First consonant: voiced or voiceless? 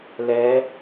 voiced